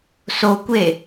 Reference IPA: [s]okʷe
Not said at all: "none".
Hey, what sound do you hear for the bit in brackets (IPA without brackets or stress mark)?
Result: s